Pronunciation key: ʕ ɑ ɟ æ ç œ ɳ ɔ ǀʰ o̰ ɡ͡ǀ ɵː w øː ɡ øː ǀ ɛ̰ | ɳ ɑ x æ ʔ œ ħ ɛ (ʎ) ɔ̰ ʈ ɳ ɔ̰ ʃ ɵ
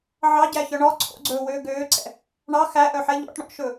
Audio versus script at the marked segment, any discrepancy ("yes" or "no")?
no